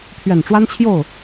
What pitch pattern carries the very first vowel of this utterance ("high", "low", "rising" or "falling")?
low